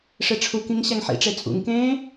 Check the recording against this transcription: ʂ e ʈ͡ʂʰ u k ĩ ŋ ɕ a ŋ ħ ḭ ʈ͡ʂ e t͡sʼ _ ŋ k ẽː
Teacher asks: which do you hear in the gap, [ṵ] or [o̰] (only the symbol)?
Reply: ṵ